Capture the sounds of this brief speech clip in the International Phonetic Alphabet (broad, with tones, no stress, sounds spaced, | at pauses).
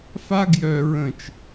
f a˥ ɡ j œ˧ ɹ ə̃˧˩ t͡ʃ